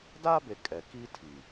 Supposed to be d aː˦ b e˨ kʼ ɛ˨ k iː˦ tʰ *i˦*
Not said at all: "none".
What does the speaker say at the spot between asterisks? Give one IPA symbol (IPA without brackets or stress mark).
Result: i˨